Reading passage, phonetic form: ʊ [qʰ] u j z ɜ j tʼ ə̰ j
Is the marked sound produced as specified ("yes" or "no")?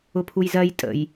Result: no